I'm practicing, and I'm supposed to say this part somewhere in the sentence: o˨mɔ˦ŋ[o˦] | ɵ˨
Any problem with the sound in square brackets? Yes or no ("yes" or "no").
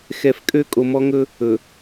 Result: yes